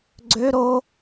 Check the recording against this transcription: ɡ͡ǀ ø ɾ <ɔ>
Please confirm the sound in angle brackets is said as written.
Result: no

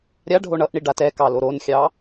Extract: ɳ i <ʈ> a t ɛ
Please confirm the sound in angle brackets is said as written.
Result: no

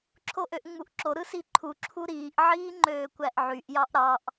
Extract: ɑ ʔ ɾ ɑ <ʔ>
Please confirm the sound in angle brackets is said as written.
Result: yes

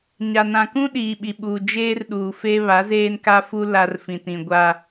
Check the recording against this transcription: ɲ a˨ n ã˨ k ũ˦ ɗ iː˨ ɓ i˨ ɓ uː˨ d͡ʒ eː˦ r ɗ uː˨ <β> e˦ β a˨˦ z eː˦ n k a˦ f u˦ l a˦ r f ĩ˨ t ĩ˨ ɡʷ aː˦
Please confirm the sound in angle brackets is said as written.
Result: no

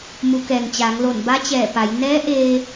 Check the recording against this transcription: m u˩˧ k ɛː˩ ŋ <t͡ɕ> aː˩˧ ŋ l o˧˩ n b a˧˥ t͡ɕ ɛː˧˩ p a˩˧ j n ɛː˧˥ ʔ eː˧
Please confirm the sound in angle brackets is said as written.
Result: yes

